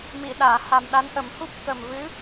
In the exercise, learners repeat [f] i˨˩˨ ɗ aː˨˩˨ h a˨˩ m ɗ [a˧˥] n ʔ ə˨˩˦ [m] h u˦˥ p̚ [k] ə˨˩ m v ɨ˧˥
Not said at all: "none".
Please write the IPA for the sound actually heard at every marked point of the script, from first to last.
m, a˧˥, m, k

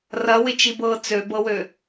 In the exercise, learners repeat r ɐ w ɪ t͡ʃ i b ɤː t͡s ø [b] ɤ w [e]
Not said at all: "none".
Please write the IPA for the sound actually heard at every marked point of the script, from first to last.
b, ø

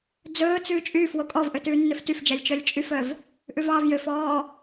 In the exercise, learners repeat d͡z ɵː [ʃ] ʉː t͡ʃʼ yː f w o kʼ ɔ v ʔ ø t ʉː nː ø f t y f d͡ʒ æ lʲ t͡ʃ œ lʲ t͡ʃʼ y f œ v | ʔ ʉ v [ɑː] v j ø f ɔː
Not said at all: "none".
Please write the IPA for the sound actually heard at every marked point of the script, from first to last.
t͡s, ɑː

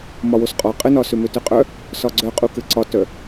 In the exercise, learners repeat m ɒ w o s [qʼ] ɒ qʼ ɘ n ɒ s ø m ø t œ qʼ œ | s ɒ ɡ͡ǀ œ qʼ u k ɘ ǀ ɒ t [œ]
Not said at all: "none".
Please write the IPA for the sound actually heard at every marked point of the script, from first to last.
qʼ, œ

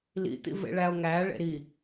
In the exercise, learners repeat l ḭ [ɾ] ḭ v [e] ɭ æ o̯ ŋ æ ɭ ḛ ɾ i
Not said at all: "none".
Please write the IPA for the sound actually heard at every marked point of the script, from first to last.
t̪, ḛ

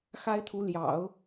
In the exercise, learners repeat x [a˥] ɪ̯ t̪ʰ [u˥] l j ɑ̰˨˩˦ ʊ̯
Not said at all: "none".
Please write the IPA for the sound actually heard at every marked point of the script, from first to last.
a˥, u˧˥

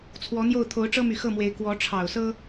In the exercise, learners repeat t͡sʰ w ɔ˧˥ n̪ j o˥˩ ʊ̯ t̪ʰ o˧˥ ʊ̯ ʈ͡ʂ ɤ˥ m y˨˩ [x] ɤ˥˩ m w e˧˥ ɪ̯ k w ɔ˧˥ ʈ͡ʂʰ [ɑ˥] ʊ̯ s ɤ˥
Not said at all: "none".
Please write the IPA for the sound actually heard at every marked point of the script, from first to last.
x, ɑ˨˩

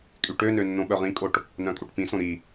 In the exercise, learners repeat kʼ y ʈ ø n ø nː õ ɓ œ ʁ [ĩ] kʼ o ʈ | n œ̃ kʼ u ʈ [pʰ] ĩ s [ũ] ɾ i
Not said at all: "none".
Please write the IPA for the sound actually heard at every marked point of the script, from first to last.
ĩ, p, õ

